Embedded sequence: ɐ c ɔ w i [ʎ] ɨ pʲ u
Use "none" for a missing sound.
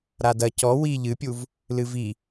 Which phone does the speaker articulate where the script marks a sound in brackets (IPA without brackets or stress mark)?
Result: ʎ